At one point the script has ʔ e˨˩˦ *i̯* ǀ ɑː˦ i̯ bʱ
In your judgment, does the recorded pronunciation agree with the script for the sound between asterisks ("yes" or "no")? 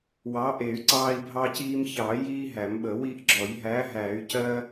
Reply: no